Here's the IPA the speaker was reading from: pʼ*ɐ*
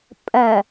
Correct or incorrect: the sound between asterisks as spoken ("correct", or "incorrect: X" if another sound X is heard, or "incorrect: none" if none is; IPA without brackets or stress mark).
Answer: correct